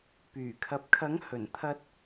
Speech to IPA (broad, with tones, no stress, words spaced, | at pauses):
pyː˨˩kʰɐ˨p̚kʰɐ˨˥ŋ hɵ˨˩n t̪ʰɐ˧t̚